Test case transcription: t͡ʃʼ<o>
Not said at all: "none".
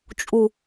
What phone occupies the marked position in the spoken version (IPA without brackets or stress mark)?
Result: u